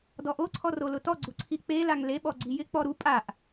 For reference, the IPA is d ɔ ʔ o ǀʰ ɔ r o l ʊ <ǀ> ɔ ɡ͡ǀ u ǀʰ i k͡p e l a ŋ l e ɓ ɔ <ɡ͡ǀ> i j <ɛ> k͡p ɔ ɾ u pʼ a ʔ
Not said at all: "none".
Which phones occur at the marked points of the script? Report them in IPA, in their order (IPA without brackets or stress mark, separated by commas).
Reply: t, ɡ͡ǀ, ɪ